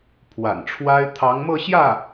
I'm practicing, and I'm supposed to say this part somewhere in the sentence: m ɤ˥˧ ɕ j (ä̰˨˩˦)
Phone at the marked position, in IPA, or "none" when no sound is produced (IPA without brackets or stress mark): ä˥˩